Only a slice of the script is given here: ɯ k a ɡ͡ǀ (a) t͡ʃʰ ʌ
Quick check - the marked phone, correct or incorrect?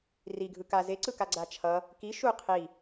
correct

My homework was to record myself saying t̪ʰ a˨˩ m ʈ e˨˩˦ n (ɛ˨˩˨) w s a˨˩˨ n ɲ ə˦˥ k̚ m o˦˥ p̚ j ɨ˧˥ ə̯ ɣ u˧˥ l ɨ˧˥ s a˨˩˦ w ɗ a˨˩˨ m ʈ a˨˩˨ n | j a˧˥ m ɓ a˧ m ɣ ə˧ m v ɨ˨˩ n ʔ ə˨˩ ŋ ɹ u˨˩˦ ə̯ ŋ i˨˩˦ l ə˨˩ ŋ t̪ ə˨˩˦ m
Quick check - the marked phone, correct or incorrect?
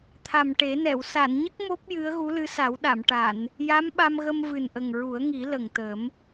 correct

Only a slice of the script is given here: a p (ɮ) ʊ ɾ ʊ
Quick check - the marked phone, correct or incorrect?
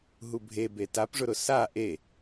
incorrect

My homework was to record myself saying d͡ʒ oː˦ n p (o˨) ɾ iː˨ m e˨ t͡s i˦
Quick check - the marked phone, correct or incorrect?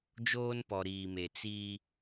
incorrect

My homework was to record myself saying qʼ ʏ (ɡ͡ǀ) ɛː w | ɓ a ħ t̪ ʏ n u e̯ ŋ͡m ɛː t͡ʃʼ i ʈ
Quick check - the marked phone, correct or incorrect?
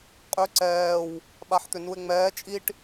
incorrect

